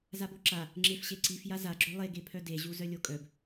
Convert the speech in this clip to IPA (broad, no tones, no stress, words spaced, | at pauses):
zaboǁa | ŋ͡ǁefɕeǀif jazaɡ͡ǁø lˠeɡepʰœ deʑu zœlʲokʼœb